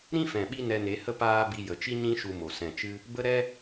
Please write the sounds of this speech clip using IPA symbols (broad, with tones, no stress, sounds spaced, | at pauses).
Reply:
ɾ ĩ˦ f ɛ̃˨ ɓ i˦ n ɛ˧ n e˨˦ h ə˦ p aː˦ b i˧ j ə˨ t͡ʃ i˦ ɲ ĩ˦ ʃ u˧ m o˨ s ɛ̃˨ t͡ʃ ɨ˦ | b ə˦ ɾ ɛ˦